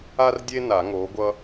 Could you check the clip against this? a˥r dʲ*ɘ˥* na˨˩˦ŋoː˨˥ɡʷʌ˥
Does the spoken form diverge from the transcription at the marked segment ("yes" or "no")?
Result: yes